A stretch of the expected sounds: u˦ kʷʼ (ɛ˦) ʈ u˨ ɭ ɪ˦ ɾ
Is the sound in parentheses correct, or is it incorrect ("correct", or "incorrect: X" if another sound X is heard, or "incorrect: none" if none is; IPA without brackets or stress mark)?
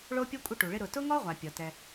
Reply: incorrect: ɪ˦